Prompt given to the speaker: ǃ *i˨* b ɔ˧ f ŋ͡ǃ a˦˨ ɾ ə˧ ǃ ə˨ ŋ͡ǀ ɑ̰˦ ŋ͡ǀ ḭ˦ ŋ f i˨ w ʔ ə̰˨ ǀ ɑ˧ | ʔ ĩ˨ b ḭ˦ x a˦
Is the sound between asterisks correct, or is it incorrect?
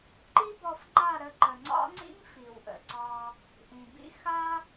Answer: incorrect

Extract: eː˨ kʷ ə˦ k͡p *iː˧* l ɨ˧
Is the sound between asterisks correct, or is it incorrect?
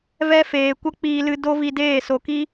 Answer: correct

